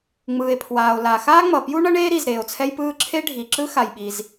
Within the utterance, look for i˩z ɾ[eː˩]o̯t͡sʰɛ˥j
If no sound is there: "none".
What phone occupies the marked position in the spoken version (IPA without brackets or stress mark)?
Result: eː˩